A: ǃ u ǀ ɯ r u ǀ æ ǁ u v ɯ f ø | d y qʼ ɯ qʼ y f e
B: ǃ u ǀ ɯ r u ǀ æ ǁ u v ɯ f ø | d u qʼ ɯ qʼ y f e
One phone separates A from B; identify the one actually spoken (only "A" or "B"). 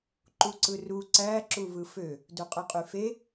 B